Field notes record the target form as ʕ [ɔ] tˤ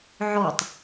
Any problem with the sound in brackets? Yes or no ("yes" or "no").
no